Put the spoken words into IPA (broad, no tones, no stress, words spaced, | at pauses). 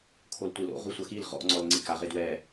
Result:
kʰoltʷilo̰ ʁusʷɐxil ʁɔ̰ ŋ͡ǀɔlŋ͡ǀika ʁedwɛ